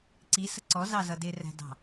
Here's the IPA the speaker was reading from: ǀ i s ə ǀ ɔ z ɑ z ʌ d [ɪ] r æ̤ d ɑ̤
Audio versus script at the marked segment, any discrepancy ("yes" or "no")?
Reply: no